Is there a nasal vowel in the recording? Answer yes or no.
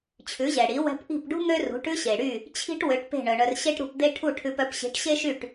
no